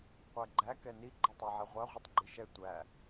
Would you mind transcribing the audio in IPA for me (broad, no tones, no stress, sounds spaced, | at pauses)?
qʷ æ ɡ͡ǃ æ k ɛ n i ɡ͡ǃ e tˤ æ ʕ ɛ ʁʷ æ ʁʷ i tˤ ɡ͡ǃ i ʃ ɛ tʷ æ